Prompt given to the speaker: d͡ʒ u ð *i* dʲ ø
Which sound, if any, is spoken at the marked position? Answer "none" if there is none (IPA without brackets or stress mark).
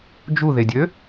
e